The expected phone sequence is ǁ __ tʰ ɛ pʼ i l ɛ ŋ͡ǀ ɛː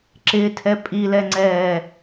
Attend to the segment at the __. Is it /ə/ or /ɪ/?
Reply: ɪ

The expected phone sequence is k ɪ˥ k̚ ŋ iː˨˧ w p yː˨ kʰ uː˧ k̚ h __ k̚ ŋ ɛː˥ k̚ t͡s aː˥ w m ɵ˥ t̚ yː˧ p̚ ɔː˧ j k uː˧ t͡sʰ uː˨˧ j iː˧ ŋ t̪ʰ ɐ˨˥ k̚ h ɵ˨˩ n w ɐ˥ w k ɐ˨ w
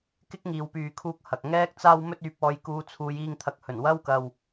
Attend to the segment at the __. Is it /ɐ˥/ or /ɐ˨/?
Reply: ɐ˨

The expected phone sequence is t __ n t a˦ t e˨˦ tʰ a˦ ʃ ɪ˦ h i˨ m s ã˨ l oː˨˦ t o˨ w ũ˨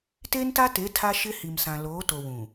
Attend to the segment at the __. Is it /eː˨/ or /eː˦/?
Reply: eː˦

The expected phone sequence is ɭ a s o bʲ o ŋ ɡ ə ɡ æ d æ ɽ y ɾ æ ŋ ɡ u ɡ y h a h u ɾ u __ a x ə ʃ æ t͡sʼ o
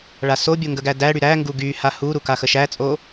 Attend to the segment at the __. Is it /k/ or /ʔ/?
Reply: k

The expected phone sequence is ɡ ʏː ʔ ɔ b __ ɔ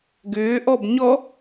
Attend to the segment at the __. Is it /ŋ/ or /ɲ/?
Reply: ɲ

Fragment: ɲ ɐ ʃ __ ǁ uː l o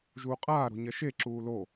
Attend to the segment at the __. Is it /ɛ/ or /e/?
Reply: e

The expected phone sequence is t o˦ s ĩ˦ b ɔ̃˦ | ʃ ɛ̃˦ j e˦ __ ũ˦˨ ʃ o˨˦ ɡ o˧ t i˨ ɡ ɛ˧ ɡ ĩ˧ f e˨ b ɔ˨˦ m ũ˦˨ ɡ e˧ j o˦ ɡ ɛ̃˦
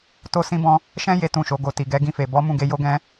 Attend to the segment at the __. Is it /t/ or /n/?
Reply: t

